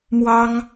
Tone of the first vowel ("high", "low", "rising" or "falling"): high